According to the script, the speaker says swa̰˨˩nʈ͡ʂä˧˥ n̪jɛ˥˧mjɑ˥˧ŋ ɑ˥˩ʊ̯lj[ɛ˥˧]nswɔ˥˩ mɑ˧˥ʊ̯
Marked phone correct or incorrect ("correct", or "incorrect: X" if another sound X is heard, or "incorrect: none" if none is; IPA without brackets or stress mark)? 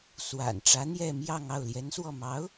incorrect: ɛ˧˥